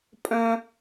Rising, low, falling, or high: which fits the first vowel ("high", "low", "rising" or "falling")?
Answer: high